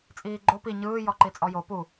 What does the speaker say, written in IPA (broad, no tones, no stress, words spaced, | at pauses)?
t͡sʼiːɡ͡ǃo pi ɲɯː jɔǃit͡sʼɔjo pu